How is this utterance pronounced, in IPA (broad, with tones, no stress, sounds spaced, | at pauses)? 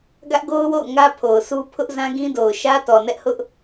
ɡ ä˦ ʔ ɡ o˦ ʊ̯ w o̰˦˨ ʊ̯ ŋ ä˦ pʰ o˨ ʊ̯ sʰ u˦ pʰ ʊ˦ ʔ z ã˦ ɡ ĩ˦ d o˨ ʊ̯ ʃ ä˦ t ɔ˨ n ɛ˦ ʔ h ʊ˦ ʔ